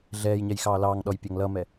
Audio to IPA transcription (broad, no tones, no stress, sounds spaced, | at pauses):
ɮ ɛː j ɲ ɛ j x ɑː l ɑː ŋ ɗ ɔ j pʲ ɑ ŋ l ʌ m ɛ